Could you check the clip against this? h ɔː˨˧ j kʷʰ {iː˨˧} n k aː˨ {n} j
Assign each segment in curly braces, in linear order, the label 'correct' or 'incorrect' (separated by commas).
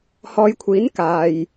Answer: incorrect, incorrect